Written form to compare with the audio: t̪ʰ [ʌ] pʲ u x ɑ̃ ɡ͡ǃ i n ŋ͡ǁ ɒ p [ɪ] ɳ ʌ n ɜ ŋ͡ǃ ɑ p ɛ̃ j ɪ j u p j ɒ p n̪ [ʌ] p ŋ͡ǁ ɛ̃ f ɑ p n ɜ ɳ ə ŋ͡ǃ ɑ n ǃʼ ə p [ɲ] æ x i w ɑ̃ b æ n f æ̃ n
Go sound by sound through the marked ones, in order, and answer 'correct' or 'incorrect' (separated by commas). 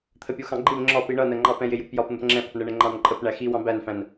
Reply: incorrect, incorrect, correct, incorrect